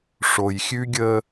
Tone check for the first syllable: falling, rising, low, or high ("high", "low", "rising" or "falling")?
low